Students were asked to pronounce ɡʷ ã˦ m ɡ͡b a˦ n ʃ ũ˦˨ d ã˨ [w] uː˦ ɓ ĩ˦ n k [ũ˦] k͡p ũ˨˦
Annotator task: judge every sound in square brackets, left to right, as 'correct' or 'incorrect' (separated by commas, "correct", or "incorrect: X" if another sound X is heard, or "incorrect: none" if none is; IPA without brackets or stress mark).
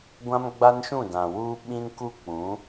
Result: correct, incorrect: u˦